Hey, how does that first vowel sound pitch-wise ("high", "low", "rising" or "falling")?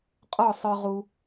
falling